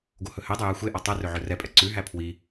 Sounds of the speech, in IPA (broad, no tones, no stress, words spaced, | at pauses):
ɡohɵhedˤɵ jæxʷeʔɔ tˤɛrø ʕɵrɛpʼɛ ǀʉɦæ pʰwi